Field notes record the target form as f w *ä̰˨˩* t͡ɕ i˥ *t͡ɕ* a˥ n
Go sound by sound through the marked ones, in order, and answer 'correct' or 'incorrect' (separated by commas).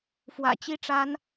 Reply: correct, incorrect